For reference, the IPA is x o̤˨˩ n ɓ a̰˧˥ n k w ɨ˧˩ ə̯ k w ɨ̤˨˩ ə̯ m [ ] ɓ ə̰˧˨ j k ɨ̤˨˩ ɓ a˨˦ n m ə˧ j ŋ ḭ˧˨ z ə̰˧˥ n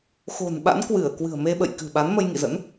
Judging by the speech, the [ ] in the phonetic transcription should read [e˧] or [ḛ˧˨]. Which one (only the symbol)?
e˧